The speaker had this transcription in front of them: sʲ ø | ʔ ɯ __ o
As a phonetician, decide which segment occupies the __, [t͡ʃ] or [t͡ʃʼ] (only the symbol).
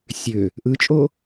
t͡ʃʼ